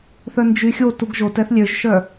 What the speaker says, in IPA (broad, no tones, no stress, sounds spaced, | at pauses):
θ œ n d͡ʒ y xʲ o t u ɡ ʒ o t ɛ θ lʲ ø ʒ ʃ œ